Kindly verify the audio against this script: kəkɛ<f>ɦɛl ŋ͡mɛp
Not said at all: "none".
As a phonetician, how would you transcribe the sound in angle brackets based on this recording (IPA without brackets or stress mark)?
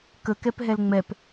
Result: p